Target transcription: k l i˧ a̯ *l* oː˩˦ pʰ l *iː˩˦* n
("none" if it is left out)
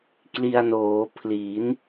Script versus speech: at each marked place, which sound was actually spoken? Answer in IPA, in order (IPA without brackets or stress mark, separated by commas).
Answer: n, iː˩˦